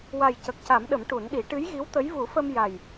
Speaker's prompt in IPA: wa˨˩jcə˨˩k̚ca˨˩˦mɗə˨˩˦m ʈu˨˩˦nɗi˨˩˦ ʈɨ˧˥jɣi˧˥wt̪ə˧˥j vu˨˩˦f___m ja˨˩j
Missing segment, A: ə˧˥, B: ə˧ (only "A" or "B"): B